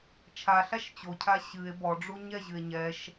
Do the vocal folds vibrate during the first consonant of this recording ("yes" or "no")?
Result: no